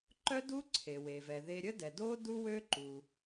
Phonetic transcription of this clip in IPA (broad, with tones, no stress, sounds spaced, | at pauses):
ǃ œ˥ d u˥ ǀʰ e˩ w e˩ v ɛ˩ ð e˧ ɾʲ ə˥ d ɛ˩ d o˥ d u˥ w ø˥ ǃ u˩